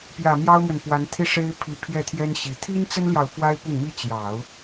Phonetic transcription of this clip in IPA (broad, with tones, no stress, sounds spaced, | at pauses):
p j ä˨˩ m j ɑ˥ ʊ̯ m w ə˨ n p w a˧˥ n t̪ʰ i˥˩ ʂ e˥ ɪ̯ pʰ i˧˥ pʰ j ɛ˥˩ t̪ʰ j ɛ˥ n ɕ i˨˩ t̪ʰ i˥ n t͡s ə˥ n l j ɑ˨ ʊ̯ f w a˥ ɪ̯ p ʊ˥˩ ŋ m i˥ t͡ɕ j ɑ˨˩˦ ʊ̯